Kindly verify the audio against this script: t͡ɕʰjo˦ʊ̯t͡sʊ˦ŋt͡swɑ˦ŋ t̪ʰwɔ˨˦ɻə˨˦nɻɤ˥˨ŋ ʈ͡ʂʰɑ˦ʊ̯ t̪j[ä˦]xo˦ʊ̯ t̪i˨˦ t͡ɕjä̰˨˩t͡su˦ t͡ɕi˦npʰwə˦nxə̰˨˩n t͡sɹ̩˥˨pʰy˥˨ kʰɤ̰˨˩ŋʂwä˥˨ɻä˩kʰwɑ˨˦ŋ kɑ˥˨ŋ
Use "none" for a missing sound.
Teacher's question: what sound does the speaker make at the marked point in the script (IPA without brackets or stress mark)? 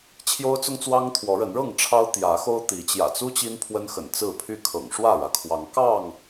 ä˨˦